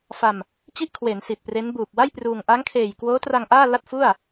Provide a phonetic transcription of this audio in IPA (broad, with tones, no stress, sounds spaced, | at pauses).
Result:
f a˧ m | t͡ɕ i˥˩ ʔ kʰ w e˩˦ n s i˨˩ t̚ p r e˦˥ n b uː˨˩ p̚ w a˥˩ j p r uː˧ ŋ ʔ a˦˥ ŋ kʰ eː˨˩ j k w oː˦˥ t r a˧ ŋ ʔ aː˥˩ l a˥˩ t̚ f u˥˩ a̯